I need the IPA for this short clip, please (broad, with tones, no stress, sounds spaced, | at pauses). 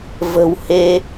v ə̤˨˩ w h e˧